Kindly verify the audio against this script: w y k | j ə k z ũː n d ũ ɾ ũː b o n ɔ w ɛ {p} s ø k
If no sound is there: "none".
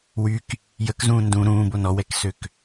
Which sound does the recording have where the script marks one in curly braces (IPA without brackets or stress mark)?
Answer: k